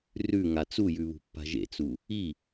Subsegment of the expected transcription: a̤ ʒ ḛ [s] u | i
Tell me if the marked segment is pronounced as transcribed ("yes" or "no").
no